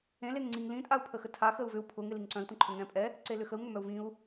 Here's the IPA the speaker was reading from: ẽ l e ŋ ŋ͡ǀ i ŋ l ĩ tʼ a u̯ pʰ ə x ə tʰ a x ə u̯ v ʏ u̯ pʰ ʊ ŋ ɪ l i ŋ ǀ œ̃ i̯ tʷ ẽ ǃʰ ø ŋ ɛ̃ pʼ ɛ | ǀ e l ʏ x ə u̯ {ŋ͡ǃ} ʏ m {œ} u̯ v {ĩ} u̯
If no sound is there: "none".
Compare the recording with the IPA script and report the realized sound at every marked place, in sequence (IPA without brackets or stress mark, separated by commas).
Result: ŋ, œ, ĩ